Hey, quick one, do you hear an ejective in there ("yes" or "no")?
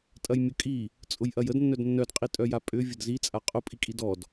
yes